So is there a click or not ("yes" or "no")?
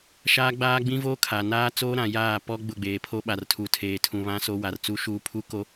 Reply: no